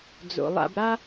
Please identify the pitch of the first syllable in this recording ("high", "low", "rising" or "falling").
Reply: low